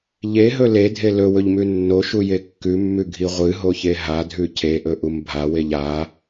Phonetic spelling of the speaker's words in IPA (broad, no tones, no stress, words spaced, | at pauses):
ʎeɦɵ ledʱe lɵwɵʎmʉ nːoʃuje kːʉmːʉɡʱi ʁʷɨɦoçe ɦadʱʉ cʰeʔɵʔum bʱaweʎ a